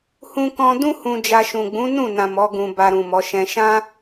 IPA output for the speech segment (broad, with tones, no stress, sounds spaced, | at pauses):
h ũ˦ k ɔ̃˧ d ũ˦ h ũ˧ d͡ʒ a˧ ʃ ũ˨ ɡ͡b ũ˨˦ n ũ˦˨ n ã˨ m ɔ˨˦ ɡ ũ˧ b a˧ ɾ ũ˨ m ɔ˨˦ ʃ ɛ̃˦ ʃ ã˦